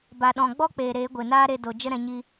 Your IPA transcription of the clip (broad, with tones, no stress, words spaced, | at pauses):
ba˨ɗɔ̃˨ ɡ͡bɔ˦k͡peː˨ ɾeː˨˦ɡʷe˨naː˦ɾe˧ do˨ d͡ʒə˦ɾɛ̃˨˦ɲi˦